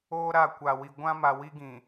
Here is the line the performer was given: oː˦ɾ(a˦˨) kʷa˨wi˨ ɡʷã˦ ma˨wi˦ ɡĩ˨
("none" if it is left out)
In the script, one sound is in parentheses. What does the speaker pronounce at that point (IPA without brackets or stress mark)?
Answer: a˦˨